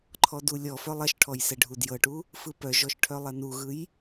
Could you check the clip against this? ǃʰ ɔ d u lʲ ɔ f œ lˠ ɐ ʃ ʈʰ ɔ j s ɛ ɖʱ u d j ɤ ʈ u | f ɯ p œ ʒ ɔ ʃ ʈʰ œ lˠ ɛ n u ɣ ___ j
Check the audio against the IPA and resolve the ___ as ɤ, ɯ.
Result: ɯ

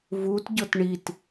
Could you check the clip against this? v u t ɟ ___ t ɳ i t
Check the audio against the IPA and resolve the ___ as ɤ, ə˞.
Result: ɤ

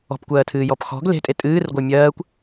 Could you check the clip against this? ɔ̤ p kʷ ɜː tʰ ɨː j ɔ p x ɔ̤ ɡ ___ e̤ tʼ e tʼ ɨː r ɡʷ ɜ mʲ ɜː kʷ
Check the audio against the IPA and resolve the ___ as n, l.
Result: l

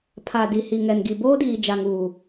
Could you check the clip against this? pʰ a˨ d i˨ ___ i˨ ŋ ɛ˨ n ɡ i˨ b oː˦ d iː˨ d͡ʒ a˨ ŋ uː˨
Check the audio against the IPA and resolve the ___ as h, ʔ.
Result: h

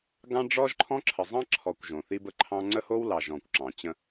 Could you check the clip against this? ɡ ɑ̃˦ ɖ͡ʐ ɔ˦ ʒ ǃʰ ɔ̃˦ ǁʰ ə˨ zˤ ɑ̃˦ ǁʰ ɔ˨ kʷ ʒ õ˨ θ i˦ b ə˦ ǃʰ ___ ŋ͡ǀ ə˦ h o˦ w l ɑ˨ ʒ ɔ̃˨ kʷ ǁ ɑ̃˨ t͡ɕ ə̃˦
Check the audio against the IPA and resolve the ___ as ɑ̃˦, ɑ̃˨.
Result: ɑ̃˦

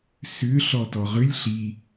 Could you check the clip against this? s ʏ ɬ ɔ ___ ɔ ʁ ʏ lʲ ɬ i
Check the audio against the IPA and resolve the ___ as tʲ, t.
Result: t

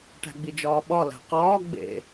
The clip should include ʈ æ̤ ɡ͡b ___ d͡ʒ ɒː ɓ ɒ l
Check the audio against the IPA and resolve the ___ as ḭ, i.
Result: i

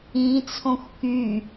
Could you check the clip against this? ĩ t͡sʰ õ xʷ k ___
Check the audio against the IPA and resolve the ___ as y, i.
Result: y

